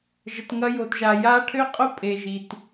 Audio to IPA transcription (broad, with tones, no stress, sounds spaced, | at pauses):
ʒ ə˨ t ŋ ɐ˧ j o˨ t ʒ a˨ j a˧ ʈʰ ø˦ qʼ ʊ˦ pʼ e˨ ʒ i˨ t